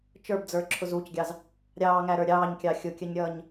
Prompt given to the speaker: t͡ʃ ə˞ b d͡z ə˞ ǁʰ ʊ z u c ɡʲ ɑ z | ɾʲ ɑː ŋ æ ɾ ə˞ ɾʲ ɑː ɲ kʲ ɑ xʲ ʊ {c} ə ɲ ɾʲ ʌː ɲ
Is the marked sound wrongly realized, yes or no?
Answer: yes